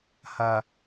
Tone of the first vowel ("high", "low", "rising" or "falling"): low